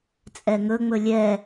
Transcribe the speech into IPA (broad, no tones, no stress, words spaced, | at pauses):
t͡sʼɛŋɵŋ͡mɵ lʲɛ